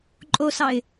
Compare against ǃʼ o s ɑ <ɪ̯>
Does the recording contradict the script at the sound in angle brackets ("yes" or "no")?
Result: no